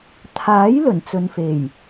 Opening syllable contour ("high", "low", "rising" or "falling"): rising